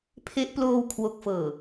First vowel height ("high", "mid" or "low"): mid